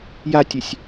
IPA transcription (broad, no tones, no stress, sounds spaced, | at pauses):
j a tʲ e sʲ